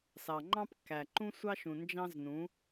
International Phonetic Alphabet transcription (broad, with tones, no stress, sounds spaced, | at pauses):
s ɑ˨ ŋ͡ǃ ɑ̃˦ p kː æ˨ ǃ ũ˦ sʷ ɑ˦ ʃ ũ˨ n d͡ʒ ɑ̃˦ z n ũ˨˦